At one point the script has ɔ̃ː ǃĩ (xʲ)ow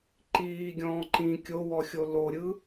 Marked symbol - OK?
no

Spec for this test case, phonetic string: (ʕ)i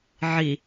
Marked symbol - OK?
yes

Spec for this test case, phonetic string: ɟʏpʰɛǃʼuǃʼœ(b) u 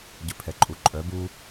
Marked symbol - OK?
yes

